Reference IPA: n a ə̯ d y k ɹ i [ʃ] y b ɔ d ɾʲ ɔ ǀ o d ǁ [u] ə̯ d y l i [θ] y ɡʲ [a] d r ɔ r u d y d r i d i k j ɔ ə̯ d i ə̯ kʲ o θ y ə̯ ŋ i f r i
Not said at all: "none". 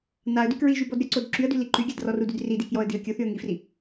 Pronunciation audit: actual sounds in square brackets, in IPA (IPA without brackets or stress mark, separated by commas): ʒ, y, ǃ, a